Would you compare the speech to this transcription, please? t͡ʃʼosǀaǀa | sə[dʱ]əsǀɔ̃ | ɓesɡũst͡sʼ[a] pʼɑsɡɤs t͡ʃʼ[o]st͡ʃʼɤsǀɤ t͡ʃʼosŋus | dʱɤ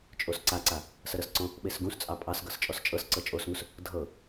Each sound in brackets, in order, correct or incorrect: incorrect, incorrect, incorrect

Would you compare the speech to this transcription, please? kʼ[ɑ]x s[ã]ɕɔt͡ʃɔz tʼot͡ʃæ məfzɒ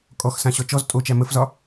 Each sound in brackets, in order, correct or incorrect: incorrect, correct

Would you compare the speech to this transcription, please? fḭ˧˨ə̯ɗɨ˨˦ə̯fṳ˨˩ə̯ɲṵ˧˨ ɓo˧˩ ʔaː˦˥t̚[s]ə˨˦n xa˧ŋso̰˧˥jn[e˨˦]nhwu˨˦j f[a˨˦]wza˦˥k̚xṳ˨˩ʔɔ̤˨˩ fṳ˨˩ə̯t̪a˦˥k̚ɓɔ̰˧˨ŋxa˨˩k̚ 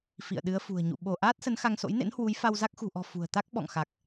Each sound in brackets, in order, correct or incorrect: correct, incorrect, incorrect

